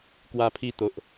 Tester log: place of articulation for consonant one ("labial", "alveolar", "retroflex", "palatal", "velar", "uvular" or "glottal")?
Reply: velar